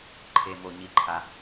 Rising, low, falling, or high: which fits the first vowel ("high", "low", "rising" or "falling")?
low